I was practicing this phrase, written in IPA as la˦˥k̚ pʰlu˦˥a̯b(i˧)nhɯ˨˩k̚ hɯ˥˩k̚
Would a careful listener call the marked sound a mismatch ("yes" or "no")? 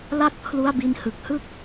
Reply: no